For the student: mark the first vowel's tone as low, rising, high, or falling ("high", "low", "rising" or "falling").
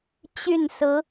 falling